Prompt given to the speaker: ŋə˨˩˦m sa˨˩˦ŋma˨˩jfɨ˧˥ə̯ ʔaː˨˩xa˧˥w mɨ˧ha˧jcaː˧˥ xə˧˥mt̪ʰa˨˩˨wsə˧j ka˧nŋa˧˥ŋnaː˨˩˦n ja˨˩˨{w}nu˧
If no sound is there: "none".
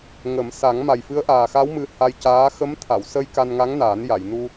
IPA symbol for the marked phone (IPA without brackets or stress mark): j